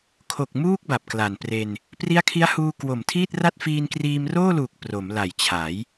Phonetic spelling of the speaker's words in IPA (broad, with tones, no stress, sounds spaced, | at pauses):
kʰ o˨˩ k̚ m uː˥˩ k̚ b a˨˩ p̚ k l a˨˩ n p r e˧ n | p r i˦˥ a̯ kʰ i˦˥ a̯ h uː˧ k w o˨˩ m tʰ iː˥˩ t̚ r a˥˩ t̚ f iː˧ n k r iː˧ m r oː˥˩ l uː˨˩ k̚ p r o˩˦ m l a˨˩ j t͡ɕʰ a˩˦ j